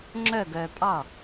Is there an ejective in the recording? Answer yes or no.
yes